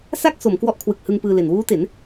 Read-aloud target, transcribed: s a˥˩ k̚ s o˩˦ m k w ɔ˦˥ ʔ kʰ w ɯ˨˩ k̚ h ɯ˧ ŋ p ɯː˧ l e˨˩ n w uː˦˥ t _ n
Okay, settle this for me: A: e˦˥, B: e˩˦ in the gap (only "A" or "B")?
B